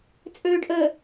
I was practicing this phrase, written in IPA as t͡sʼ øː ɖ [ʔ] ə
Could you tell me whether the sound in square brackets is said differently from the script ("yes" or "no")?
no